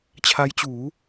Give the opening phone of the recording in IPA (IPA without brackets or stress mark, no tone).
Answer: t͡ɕʰ